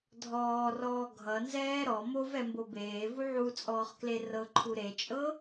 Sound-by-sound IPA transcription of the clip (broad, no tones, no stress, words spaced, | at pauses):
dʱɔːrɔː ɡʱʌnzɛː ɾɔ movɛmbo beːvu ʕut͡sʼɔːχkle rɤǃʰu ɾet͡ʃʼɤ